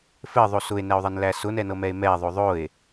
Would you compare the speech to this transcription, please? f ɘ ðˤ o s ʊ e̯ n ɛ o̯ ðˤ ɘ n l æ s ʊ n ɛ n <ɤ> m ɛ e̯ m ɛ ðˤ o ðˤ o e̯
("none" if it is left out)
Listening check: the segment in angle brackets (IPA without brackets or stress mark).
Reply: ɤ